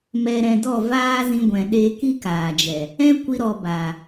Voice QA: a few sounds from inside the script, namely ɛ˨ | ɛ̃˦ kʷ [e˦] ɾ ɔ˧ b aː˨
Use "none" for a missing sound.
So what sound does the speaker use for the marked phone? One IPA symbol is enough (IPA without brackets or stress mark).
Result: i˦